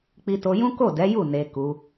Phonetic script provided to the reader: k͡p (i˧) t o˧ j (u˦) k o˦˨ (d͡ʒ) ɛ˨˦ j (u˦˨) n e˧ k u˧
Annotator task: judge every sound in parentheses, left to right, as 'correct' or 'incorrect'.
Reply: correct, incorrect, incorrect, correct

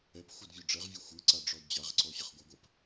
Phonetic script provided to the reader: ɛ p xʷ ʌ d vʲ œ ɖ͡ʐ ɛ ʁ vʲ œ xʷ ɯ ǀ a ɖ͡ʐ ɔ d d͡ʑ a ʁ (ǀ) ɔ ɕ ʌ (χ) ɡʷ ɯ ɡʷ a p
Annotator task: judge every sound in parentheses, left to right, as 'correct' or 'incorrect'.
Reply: correct, correct

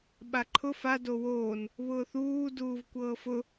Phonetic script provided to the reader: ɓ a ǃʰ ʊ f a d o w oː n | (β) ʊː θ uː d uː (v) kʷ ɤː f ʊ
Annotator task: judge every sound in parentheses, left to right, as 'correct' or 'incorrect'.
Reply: correct, correct

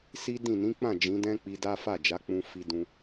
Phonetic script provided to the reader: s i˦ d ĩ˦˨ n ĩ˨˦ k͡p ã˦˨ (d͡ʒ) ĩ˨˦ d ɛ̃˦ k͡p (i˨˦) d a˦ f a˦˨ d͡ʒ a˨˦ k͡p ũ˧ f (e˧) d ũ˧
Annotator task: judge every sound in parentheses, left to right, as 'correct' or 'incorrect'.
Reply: correct, incorrect, incorrect

